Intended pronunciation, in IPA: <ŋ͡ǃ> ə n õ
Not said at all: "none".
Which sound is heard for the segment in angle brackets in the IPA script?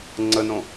ŋ͡ǀ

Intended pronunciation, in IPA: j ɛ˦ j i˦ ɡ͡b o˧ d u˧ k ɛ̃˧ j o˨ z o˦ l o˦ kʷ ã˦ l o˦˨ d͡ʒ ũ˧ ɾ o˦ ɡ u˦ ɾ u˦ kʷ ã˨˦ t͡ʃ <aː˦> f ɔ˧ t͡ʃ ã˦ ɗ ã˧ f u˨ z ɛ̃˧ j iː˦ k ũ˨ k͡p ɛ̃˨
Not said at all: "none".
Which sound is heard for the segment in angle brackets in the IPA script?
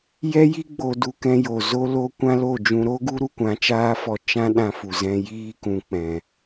aː˦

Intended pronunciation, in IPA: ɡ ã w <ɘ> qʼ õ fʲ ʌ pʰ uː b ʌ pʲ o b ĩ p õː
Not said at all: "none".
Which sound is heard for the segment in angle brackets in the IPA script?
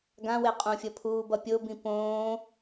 e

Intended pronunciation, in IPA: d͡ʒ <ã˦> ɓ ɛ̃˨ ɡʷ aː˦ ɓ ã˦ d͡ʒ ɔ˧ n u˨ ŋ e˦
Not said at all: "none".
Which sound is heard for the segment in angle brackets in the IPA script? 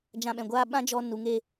ã˧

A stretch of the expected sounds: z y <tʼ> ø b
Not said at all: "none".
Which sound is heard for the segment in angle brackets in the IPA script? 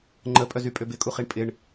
pʼ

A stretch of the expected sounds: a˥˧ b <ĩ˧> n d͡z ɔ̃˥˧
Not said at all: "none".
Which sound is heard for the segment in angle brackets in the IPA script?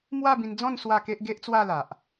ĩ˧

